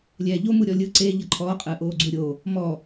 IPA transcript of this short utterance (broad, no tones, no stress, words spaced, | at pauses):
lʲɛːʎomu ɾʲɔlʲɯ ǀe ʎɤǃʰɔːqʼɯː ʔoːɡ͡ǀuɾʲo | mɔ